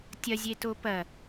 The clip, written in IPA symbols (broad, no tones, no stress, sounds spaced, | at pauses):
tʲ ɐ zʲ e t o p ɐ